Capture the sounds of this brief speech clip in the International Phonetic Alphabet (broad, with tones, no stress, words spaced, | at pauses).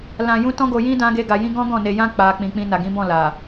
lã˧jũ˦ tɔ̃˦ɡo˧jĩ˦ dã˦ɡe˦ɡa˧jĩ˦ ɡɔ̃˦ɡɔ̃˦˨ne˧jã˦ k͡pa˧ k͡pĩ˨k͡pĩ˧ na˨ɡĩ˨˦bɔ̃˦˨ la˨